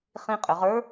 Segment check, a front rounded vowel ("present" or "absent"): present